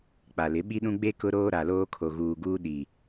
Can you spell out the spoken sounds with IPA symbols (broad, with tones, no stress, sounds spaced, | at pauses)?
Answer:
k͡p a˨ l ɪ˨˦ ɓ i˦ ɗ ũ˦ ɡ͡b e˦ k ʊ˦ ɾ oː˦ ɾ a˨ l oː˦ kʰ o˨ ɣ uː˨ ɡ uː˦ ɗ i˨